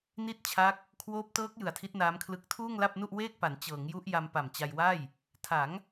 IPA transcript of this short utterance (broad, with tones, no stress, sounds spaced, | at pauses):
n i˥˩ t̚ t͡ɕʰ a˦˥ k̚ | kʰ w oː˦˥ p̚ t ɤː˦˥ k̚ j ɯ˨˩ a̯ tʰ i˦˥ t̚ n aː˦˥ m kʰ l ɯ˦˥ k̚ tʰ uː˥˩ ŋ l a˥˩ p̚ n u˥˩ ʔ w eː˥˩ k̚ p a˩˦ n t͡ɕ ɤː˩˦ ŋ j u˦˥ ʔ j a˧ m p a˨˩ m t͡ɕ a˧ j w a˥˩ j | tʰ a˩˦ ŋ